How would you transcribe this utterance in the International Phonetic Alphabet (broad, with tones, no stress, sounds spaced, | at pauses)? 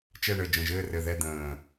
t͡ʃ ɛ˦˨ ɳ ɘ˨˩ d͡ʒ ə̃˨˩ ʒ ɘː˦˨ r ɘ˨˩ ð ɛ˦˨ d̪ ə̃ː˨˩